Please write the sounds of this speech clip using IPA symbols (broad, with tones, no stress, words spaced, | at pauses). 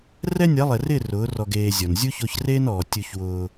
rɛ˦nʲa˨˦lˠɛ˨rɪː˦˨ rʊː˨˦rɔ˧ ɡeː˧zʲɔ˨n zʲu˦ço˧çreː˦nɔː˨ tʲu˧çwʊː˧